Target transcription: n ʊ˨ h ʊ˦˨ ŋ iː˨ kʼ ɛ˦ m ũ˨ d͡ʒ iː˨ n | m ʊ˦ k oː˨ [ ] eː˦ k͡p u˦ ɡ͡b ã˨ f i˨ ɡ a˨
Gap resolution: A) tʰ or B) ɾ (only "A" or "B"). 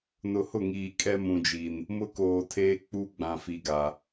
A